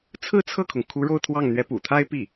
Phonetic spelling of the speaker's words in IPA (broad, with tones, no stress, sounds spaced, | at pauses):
t͡sʰ ɹ̩˥˧ t͡sʰ ɤ˥˩ kʰ ʊ˩ ŋ kʰ u˧˥ ɻ o˥˧ ʊ̯ t̪ʰ w ɑ˥˩ ŋ n̪ ɥ ɛ˧˥ p ṵ˨˩ t̪ʰ a˥ ɪ̯ p i˥˩